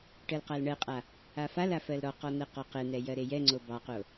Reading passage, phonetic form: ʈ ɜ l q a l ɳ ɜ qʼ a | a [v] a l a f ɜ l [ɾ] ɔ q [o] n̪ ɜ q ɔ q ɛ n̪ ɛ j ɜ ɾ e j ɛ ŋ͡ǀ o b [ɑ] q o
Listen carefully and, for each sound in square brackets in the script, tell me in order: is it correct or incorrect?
incorrect: f, correct, incorrect: ɔ, correct

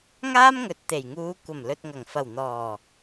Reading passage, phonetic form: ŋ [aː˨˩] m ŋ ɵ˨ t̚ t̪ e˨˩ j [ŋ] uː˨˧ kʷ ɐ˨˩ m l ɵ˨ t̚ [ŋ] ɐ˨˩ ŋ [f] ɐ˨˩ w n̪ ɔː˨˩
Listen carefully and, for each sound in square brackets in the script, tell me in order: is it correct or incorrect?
incorrect: aː˥, correct, correct, correct

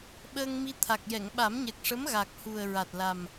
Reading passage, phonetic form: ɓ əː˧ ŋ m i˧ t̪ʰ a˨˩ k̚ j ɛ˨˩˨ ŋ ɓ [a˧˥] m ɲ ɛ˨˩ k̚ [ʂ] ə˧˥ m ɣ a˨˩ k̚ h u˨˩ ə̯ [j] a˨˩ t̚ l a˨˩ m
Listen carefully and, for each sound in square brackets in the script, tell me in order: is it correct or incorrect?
incorrect: a˨˩˦, correct, incorrect: ɹ

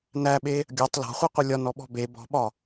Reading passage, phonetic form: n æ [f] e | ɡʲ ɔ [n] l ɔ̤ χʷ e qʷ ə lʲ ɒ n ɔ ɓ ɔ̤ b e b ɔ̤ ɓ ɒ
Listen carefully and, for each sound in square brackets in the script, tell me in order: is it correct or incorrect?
incorrect: ɓ, incorrect: tˤ

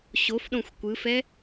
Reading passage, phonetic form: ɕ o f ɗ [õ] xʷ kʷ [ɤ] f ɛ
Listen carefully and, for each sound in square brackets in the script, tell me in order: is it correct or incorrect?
correct, incorrect: ɯ

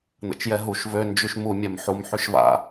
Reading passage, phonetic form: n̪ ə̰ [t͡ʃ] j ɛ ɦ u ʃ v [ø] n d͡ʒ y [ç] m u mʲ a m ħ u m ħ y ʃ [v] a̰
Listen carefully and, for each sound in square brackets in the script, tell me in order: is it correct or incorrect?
correct, correct, incorrect: ʃ, correct

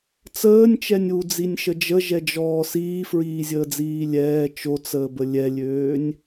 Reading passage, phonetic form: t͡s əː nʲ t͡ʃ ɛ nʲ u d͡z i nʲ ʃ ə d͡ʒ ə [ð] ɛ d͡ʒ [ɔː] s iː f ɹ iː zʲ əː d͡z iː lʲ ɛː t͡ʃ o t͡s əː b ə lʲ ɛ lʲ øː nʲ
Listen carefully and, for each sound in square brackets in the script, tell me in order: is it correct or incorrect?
incorrect: ʒ, correct

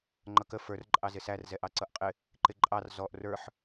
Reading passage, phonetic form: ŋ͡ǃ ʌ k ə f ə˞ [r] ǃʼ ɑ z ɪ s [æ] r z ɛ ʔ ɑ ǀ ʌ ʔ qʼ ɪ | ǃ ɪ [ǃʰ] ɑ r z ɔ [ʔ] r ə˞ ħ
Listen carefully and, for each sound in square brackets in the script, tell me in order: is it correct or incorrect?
correct, correct, incorrect: ǃʼ, correct

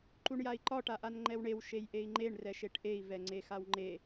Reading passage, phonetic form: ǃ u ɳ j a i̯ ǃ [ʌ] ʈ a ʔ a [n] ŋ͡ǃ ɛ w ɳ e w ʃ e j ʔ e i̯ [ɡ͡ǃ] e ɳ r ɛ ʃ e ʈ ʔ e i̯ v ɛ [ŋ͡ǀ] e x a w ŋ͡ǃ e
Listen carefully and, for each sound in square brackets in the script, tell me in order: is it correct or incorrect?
incorrect: ɒ, correct, incorrect: ŋ͡ǃ, correct

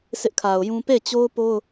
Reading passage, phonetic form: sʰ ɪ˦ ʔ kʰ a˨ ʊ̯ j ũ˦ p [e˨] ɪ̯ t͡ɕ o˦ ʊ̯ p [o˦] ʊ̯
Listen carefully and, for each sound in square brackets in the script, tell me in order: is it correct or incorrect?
incorrect: e˦˨, correct

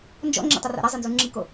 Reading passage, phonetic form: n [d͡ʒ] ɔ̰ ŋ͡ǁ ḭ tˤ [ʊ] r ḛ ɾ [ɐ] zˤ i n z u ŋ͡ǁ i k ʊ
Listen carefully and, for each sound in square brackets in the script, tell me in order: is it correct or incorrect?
correct, correct, correct

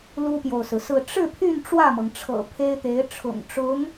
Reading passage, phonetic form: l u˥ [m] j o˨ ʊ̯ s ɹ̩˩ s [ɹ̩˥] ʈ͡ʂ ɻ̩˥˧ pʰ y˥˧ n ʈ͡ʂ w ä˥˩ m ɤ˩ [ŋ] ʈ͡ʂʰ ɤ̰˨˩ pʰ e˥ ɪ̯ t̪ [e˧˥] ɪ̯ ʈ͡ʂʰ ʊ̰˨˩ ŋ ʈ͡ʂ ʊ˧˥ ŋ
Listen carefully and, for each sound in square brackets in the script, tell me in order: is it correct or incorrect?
incorrect: p, incorrect: ɹ̩˥˧, correct, correct

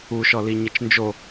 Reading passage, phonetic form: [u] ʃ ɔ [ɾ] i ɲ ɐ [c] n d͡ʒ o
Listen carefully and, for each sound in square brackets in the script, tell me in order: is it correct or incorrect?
correct, incorrect: l, incorrect: t͡ʃ

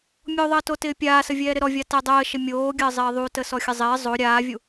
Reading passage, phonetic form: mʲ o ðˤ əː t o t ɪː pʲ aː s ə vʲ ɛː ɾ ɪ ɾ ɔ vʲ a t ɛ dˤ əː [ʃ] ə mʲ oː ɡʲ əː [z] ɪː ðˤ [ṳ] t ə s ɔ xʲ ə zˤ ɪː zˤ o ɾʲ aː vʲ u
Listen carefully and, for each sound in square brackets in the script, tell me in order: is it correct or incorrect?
correct, incorrect: zˤ, incorrect: u

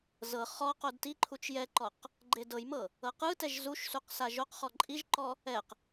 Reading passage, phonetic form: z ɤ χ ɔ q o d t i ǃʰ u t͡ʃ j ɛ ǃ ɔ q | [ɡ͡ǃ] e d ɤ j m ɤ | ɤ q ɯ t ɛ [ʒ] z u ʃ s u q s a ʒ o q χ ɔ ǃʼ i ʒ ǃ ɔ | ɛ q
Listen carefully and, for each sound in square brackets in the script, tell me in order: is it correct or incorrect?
correct, correct

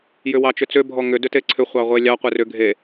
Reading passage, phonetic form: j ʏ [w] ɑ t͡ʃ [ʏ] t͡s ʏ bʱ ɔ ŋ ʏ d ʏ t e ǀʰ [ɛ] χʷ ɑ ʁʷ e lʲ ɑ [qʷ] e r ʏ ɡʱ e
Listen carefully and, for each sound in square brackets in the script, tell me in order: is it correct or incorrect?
correct, correct, incorrect: ʏ, correct

